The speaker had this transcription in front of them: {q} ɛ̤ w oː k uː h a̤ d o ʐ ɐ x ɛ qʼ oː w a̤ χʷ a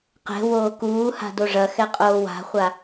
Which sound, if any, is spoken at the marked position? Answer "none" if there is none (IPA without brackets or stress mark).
q